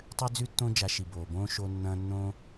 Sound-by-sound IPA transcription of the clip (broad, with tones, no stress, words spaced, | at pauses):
tˤʉ˦d͡zʉ˦tːõ˦ d͡ʒa˧ʃi˨boː˨bõː˦ ʃo˦nːɐ̃ː˦ nːõ˦